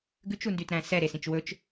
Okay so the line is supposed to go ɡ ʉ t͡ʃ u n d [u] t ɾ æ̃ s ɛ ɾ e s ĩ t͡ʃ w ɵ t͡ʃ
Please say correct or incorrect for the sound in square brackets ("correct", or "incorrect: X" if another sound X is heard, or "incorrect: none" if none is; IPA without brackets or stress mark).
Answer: incorrect: y